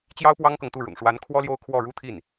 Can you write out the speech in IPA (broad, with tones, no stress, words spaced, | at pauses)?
t͡ɕjɑ˥ʊ̯pwɑ˥ŋkɤ˨ŋt̪u˥˩ ɻʊ̰˨˩ŋʂwa˧˥n kʰwɔ˥ljo˥˧ʊ̯ kʰwɔ˥˩ɻu˥t̪ʰi˥˩n